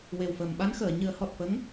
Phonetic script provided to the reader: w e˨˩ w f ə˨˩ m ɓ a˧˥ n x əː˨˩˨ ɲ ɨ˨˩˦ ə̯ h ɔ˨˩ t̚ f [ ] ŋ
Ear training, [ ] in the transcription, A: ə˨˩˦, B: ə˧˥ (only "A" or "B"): B